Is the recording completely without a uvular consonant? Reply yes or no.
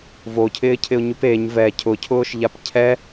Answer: yes